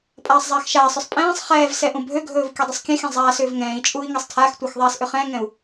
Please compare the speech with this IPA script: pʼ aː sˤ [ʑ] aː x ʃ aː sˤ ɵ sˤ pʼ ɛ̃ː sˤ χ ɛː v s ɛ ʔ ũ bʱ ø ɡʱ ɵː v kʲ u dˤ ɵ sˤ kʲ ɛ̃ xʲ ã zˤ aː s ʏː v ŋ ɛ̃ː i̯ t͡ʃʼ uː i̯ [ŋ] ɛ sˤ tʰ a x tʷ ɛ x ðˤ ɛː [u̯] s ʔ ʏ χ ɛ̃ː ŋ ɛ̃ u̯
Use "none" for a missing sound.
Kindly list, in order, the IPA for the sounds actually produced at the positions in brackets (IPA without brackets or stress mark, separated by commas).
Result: zˤ, ŋ, none